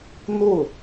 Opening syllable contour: falling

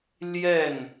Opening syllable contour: falling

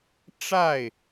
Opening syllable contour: falling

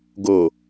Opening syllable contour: low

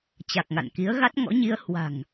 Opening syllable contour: low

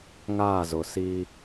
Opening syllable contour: falling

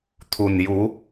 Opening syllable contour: low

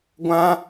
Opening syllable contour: high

